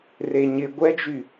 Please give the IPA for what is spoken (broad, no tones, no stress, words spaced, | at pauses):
reɲɪ ɡʷɛd͡ʒy